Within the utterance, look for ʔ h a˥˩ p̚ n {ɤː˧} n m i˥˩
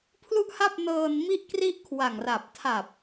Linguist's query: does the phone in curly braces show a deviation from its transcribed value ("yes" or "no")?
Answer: no